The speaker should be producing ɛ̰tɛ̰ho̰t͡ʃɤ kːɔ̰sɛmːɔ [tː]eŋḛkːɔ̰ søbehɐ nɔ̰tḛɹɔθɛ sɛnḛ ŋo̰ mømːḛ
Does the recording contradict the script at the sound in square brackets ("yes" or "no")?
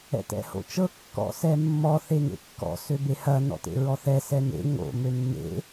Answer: yes